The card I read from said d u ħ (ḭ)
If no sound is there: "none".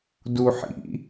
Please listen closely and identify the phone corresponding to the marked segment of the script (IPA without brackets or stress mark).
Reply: ḭ